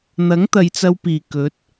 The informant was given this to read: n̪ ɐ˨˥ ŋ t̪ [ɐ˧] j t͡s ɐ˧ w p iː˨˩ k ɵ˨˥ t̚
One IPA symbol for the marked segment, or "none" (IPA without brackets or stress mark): ɐ˨˧